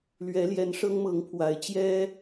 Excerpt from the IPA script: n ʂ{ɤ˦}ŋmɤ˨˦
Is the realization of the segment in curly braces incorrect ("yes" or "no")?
no